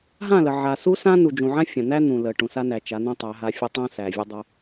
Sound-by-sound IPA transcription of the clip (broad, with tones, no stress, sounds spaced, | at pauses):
ɦ ã˦˨ l ə˨ ʕ a˨ s u˦ s ã˦ n u˨ d͡ʒ ũ˨ ʕ ã˦ fʲ ã˨ n̪ æ˦ n̪ ũ˨ l ə˨ ʈ ũ˨ s a˦ n æ˨ t͡ʃ a˨˦ n̪ ũ˦ tˤ æ˨˦ ɦ a˦ fʲ ə˦ tˤ ũ˦ s æ˨ vʲ ə˦ dˤ o˦